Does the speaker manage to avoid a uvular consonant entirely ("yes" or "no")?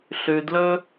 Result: yes